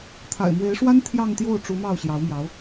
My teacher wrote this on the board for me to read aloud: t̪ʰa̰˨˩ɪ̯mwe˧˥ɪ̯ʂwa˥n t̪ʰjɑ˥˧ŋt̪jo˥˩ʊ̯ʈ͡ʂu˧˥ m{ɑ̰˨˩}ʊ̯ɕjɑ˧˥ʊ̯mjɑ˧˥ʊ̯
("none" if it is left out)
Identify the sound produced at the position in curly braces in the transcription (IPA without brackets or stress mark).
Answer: ɑ˥˩